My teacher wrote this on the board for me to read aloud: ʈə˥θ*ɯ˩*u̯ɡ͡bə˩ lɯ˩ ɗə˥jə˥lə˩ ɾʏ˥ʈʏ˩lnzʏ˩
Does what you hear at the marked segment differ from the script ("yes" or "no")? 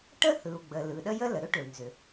no